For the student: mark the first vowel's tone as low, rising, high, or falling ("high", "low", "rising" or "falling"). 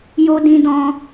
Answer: high